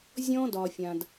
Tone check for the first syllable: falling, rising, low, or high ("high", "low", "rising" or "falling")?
high